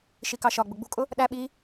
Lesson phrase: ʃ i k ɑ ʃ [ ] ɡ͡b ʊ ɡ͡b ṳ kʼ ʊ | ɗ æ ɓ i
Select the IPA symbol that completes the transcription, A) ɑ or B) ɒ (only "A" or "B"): B